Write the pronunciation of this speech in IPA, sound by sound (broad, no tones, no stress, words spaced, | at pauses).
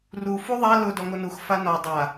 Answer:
ru fuðˤa lʊ dɔŋonux fanɔ dˤa